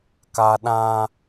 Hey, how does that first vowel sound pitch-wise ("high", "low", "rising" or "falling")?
high